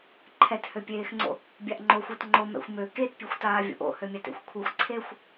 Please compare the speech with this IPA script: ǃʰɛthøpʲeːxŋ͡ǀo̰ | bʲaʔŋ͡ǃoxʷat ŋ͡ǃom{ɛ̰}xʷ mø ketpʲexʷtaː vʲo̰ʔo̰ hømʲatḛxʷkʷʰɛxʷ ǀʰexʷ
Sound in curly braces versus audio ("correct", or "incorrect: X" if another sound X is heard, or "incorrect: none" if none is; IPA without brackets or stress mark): correct